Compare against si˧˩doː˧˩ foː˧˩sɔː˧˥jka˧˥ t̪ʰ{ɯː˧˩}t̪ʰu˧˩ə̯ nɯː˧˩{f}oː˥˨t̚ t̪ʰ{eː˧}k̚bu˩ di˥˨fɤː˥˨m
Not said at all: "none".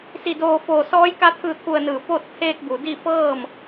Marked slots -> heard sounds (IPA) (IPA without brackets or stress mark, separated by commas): ɯː˧˩, p, eː˧